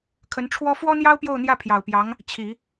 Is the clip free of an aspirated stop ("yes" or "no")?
no